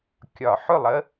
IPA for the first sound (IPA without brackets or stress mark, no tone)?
kʲ